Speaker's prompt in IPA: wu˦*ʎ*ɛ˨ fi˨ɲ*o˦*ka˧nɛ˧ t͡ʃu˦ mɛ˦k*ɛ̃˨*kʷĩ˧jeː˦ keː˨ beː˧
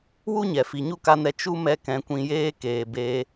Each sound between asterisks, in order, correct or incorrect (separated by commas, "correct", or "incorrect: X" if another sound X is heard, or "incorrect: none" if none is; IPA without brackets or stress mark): incorrect: ɲ, incorrect: u˦, incorrect: ɛ̃˨˦